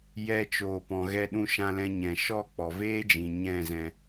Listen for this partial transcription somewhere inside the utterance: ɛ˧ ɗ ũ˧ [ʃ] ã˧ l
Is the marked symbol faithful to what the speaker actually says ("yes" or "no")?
yes